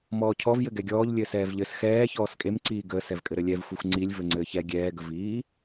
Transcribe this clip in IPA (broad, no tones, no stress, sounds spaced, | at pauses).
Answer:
m ɔː cʰ ɔ v j ɘ ɡ ɛ ɡʲ ɔː ʎ lʲ ɘː s ɛː v ʎ ɘ s x ɛː ç ɔː s kʼ e m ǀ iː ɡ əː s ɛ v kʼ ɘ ɾ ɘ lʲ ɛ v xʷ e xʷ ŋ͡ǀ i lʲ v ɘ ŋ͡ǀ ɘː ç ɛ ɡʲ ɛː ɡ ə v iː